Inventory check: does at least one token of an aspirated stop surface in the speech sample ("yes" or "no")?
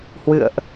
no